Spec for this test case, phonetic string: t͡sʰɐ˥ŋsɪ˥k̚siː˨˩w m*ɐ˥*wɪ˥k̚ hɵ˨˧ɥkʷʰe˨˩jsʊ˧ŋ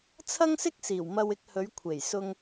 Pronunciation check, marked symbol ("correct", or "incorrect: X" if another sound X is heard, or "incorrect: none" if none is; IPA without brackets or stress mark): incorrect: ɐ˧